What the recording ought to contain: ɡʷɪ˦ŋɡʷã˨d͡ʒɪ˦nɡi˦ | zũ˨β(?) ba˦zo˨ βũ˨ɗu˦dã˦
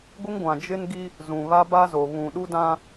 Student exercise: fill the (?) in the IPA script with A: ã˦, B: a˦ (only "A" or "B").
B